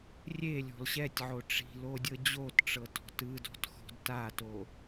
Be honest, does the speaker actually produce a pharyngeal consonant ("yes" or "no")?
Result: yes